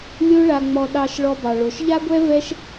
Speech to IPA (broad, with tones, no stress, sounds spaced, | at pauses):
lʲ o˦ ɭ a˧ ŋ͡m ɔ˧ ɗ ɑ˧ ʃ ɭ ɔ˧ b ɑ˨ ɭ o˨ ʃ ʎ a˦ ɡʷ ɛ˦ v ɛ˦ ʃ